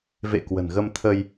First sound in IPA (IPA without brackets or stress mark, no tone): v